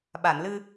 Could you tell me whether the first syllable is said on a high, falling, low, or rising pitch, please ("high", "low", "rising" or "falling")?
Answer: low